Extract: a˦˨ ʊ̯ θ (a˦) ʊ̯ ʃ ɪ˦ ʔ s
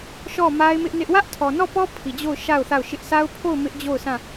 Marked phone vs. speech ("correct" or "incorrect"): incorrect